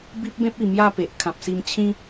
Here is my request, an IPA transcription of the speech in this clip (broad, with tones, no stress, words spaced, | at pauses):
bi˦p̚bẽ˦p̚i˨˩ mja˥˧pe˨ʔ kʰã˨p̚si˧mt͡ɕʰĩ˦